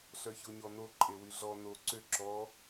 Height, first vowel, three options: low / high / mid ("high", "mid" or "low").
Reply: mid